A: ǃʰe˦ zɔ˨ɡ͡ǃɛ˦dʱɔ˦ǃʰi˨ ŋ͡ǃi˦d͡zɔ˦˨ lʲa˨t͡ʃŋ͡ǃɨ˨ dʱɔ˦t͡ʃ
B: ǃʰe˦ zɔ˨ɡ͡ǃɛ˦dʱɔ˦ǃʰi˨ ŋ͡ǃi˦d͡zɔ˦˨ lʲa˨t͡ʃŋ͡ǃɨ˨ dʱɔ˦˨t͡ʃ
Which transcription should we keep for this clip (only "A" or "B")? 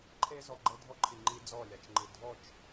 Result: B